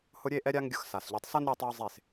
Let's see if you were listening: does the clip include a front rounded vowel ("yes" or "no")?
no